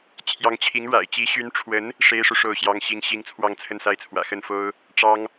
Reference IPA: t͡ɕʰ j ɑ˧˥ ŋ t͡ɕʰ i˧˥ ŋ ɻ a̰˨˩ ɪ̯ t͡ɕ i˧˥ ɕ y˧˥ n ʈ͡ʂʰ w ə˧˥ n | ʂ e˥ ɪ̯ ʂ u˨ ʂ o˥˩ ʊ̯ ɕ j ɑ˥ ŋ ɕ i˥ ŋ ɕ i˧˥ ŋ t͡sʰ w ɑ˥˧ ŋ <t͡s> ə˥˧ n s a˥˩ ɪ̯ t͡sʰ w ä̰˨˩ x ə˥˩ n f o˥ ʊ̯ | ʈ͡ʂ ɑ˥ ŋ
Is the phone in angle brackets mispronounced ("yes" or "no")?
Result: yes